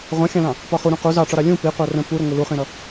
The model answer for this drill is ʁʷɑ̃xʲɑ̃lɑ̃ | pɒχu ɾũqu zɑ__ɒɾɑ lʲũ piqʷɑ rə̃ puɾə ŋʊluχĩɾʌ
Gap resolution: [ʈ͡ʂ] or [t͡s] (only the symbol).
ʈ͡ʂ